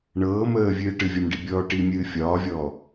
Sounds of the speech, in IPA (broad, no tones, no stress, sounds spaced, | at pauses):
ɳ ɤː m əː vʲ ɨː ʈ ɨ vʲ ɒ m ɖ i bʲ ɔː ʈ i mʲ ɨː fʲ ɒː vʲ ɔː